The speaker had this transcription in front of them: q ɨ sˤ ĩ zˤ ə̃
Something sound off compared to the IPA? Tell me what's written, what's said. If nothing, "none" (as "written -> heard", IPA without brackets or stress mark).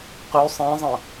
ɨ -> y